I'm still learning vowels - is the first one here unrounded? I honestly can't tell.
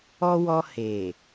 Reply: no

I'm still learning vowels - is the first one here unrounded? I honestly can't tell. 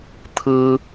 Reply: yes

